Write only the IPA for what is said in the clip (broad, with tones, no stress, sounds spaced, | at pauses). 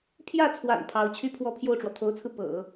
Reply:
pʰ j ä˥˩ t͡sʰ w a̰˨˩ n pʰ ɑ˧˥ ʊ̯ t͡ɕʰ y˥˧ pʰ w ɔ˥˧ pʰ j o˥˩ ʊ̯ ʈ͡ʂ w ɔ˩ t̪ʰ o˧˥ ʊ̯ t͡sʰ ɹ̩˧ p ɤ̰˨˩˦